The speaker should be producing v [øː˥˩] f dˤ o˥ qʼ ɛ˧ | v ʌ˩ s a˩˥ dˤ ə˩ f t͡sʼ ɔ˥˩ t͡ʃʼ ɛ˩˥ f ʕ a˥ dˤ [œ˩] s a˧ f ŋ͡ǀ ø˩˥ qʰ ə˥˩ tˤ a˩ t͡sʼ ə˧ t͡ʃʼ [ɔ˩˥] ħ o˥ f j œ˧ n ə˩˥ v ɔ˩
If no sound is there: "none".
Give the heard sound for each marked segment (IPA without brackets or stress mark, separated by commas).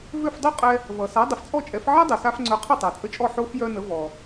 ø˥˩, œ˩, ɔ˥˩